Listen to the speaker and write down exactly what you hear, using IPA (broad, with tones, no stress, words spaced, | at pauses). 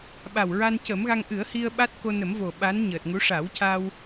ɓa˨˩wɹa˧ncə˨˩˦mɣa˧ŋ ʔɨ˨˩˦ə̯hi˧ə̯ ɓa˦˥t̚ko˧nə˨˩˦mvo˨˩ ɓa˧˥nɲəː˨˩t̚ŋu˧˥ ʂa˨˩˦wca˧w